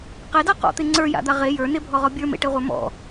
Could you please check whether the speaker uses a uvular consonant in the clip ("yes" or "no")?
yes